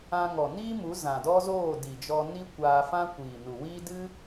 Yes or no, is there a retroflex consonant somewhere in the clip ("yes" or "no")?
no